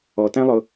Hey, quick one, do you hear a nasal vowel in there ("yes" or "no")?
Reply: yes